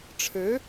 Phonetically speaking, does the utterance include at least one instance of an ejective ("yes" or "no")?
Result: no